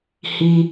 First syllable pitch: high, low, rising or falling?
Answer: high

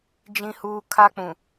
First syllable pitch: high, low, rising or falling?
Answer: high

